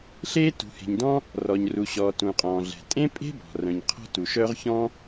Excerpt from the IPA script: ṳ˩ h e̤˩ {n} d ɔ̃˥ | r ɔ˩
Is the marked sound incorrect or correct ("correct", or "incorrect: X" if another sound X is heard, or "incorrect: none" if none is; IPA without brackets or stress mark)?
incorrect: ɲ